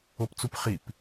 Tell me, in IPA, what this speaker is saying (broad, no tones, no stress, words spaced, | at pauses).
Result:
opt͡supχip